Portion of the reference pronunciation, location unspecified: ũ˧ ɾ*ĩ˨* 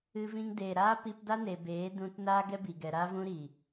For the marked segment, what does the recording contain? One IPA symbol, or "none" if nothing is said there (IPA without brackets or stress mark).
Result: i˨